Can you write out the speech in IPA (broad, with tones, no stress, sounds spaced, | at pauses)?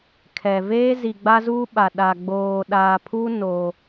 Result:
kʰ ɛ˨ v eː˦ z i˨ ɡ͡b a˦ z uː˦ ɓ a˨ ɗ a˨ ɡ͡b oː˨ ɗ aː˨ pʰ u˦ n oː˦